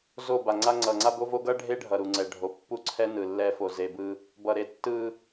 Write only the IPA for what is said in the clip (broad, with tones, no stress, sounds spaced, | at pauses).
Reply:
z o˦˨ b a˨ ŋ͡ǀ a˦ ŋ͡ǀ ʌ˨ ŋ͡ǀ a˦ b o˦ v o˦ ɡ ʌ˦ ɖʱ e˦ ɖʱ ʌ˨ ɾ u˨ ŋ͡ǀ ɛ˨ ɖʱ o˨ pː u˦ ǀʰ ɛ˦ n ɯ˨ lː ɛ˦ f o˨ z e˨ b ɯ˦ | b ʌ˨ ɾ e˦˨ tː ɯ˦